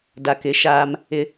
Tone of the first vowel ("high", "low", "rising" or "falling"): low